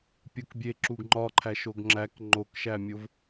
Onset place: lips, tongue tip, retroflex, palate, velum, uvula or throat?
lips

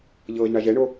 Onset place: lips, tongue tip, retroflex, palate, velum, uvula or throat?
palate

